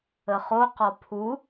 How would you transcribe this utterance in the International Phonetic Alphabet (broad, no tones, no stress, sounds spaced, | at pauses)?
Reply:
ə χ o q ɔ pʰ u